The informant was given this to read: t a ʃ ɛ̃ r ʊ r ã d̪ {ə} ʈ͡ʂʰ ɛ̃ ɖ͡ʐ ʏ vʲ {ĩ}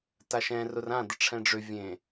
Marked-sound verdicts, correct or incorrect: correct, incorrect: ẽ

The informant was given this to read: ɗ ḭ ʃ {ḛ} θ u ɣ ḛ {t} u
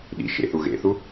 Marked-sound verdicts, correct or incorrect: correct, incorrect: θ

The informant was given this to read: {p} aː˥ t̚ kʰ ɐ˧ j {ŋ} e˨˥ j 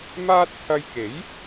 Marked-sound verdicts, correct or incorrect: incorrect: m, incorrect: k

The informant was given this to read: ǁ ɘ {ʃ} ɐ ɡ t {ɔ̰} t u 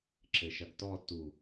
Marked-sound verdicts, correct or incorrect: correct, incorrect: ɔ

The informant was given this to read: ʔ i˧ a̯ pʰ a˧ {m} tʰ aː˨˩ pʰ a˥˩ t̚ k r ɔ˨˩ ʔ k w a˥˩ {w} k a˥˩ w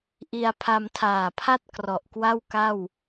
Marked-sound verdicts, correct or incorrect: correct, correct

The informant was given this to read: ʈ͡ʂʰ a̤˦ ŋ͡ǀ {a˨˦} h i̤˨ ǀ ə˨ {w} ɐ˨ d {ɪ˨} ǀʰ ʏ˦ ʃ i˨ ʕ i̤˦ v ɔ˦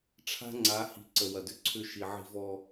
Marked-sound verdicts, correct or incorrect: correct, correct, incorrect: ʏ˨

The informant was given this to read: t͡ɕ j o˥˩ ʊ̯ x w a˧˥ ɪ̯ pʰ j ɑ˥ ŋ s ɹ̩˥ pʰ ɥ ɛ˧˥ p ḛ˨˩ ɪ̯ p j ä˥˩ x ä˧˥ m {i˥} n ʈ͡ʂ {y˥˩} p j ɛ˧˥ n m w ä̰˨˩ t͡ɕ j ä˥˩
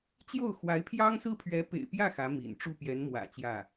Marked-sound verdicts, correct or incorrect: incorrect: ḭ˨˩, incorrect: u˥˩

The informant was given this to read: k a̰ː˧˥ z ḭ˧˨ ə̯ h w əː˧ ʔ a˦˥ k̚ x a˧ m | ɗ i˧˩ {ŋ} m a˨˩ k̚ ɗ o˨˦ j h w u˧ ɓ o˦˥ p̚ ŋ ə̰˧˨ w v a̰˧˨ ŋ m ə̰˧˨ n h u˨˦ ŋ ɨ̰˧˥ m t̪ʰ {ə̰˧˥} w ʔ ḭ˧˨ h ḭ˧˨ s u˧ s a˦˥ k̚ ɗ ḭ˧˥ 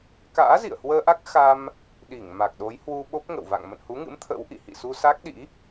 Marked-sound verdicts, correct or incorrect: correct, correct

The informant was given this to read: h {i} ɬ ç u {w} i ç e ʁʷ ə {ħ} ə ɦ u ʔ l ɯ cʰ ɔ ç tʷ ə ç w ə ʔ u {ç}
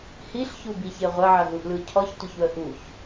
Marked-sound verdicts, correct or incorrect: correct, incorrect: b, incorrect: ʕ, correct

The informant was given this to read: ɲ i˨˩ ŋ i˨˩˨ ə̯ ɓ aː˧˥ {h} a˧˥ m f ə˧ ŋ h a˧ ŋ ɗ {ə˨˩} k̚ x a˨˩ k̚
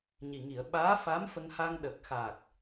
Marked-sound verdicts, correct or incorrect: incorrect: f, correct

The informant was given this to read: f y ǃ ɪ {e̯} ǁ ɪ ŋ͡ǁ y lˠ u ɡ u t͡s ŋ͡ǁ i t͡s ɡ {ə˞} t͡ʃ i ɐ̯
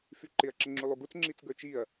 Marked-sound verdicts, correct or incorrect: incorrect: ɐ̯, correct

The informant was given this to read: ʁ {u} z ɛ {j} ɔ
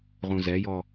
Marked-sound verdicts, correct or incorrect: incorrect: ũ, correct

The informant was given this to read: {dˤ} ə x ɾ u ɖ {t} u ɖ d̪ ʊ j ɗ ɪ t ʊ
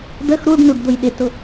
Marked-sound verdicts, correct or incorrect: incorrect: d̪, incorrect: n

